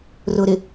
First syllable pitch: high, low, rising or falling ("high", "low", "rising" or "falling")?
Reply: low